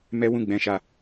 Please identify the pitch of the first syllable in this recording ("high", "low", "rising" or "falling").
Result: high